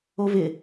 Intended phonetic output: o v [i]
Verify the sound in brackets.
incorrect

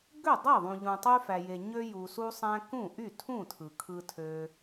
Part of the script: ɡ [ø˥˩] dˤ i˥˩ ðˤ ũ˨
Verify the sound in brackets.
correct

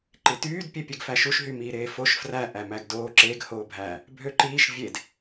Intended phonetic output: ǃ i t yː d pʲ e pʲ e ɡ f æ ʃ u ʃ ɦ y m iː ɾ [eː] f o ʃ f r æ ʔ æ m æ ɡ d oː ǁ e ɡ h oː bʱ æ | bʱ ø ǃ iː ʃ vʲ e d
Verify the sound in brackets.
correct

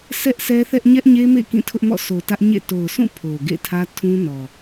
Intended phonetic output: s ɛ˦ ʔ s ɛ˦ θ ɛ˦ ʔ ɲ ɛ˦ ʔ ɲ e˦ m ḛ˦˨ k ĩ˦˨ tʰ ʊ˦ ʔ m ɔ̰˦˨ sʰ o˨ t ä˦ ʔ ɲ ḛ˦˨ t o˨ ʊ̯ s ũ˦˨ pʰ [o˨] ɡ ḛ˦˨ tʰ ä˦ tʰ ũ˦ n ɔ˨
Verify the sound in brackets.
correct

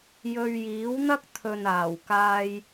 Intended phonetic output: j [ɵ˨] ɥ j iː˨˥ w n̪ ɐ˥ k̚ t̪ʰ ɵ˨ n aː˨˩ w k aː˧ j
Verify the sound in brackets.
incorrect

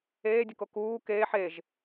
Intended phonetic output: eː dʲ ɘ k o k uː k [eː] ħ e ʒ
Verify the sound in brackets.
correct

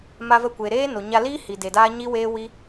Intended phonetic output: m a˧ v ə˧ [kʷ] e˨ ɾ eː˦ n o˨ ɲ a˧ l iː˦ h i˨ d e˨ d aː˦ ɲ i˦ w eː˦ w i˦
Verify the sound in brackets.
correct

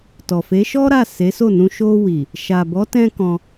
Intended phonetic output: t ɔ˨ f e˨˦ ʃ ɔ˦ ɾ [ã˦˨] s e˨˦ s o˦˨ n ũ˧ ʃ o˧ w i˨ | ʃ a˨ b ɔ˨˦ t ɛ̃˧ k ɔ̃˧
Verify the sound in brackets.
incorrect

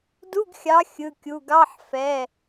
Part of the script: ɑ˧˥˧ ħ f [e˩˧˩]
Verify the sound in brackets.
incorrect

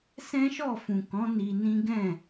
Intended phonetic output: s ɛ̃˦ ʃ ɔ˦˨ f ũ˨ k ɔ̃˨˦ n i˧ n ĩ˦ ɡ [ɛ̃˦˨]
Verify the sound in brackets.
correct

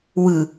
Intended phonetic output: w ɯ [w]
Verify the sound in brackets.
incorrect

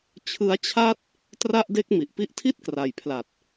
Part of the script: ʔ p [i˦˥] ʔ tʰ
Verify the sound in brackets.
incorrect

